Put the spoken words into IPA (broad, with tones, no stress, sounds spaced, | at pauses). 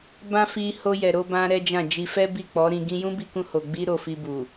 b ã˦ f i˧ h o˧ j ɛ˨ ɾ o˧ b ã˧ ɾ ɛ˦ d͡ʒ ã˦˨ d͡ʒ i˧ f ɛ˦ b i˦˨ k͡p ɔ˨˦ ɾ ĩ˧ ɡ ĩ˦ j ũ˦ b i˧ k ũ˧ h o˨ ɡ͡b i˧ ɾ o˨ f i˧ b u˨